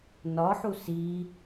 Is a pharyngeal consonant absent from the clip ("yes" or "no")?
no